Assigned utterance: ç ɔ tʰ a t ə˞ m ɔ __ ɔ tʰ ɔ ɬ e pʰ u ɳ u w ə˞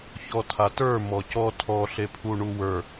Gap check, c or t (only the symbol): c